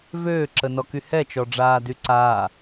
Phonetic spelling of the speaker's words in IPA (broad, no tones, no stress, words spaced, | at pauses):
vøːǁənɔky hɛt͡ʃɔɖ͡ʐaːdy ǀa